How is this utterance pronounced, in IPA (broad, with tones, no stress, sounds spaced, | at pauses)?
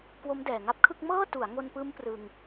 k w o˦˥ m d ɛː˨˩ ŋ a˦˥ p̚ kʰ ɯ˥˩ k̚ m ɤː˥˩ t u˩˦ a̯ ŋ o˧ n p ɯː˦˥ m p r ɯ˧ ŋ